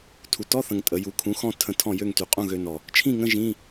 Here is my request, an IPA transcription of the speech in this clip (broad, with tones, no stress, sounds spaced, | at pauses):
tʰ u˩˧ t ɔ˧˥˧ θ ə̃˨˩ ŋ tʼ ə˩˧ j u˩˥ kʰ ũ˩˥ x ɔ̃˧ tʰ ə̃˧ tʰ ɔ̃˥˨ j ø˥˨ ŋ t y˩˧ qʼ ũ˥˨ ɣ ø˧ n ɔ˨˩ | t͡ʃʰ ĩ˥˨ ŋ ə̃˧˥˧ ʒ ĩ˧˥˧